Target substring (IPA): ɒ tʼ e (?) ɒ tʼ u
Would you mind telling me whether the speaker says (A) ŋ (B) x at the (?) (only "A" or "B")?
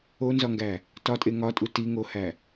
A